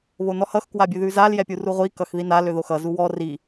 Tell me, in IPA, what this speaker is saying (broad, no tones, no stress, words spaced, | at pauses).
βonɔhʌx kwabʲʉðʉzal jɛpʲuruʁʷi kʌxðinal øðoxʌ zuwɔ ri